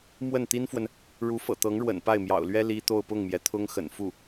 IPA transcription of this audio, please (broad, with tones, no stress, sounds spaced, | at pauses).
m w ə˥˩ n t̪ i˥ n f w ə˨ n | ɻ u˧˥ f ɤ̰˨˩ t̪ ɤ˧˥ ŋ ɻ w ə̰˨˩ n p a˥˩ ɪ̯ m j ɑ̰˨˩ ʊ̯ l ɥ ɛ˥ l i˥ t̪ o˥˧ ʊ̯ p ʊ˥˩ ŋ m j ɛ˩ t̪ʰ ʊ˥ ŋ x ə̰˨˩ n f u˥˩